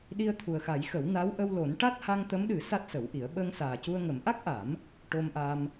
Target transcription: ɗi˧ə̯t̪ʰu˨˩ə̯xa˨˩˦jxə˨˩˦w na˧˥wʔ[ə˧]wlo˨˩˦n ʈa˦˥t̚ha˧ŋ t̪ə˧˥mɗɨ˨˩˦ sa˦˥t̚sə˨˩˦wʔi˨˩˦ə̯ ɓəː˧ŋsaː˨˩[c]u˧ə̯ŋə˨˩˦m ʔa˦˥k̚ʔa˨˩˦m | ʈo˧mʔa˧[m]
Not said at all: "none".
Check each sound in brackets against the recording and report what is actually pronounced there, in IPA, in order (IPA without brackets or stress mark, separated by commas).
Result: ə˧, c, m